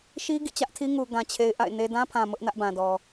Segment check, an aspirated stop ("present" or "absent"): present